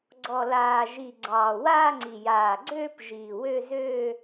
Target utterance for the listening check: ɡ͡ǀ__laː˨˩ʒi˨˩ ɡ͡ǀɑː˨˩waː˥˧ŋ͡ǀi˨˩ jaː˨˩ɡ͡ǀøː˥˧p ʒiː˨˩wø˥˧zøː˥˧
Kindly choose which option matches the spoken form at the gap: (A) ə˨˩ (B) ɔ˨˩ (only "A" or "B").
B